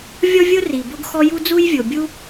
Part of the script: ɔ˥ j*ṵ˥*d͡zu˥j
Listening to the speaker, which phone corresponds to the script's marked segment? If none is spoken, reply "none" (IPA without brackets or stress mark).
u˥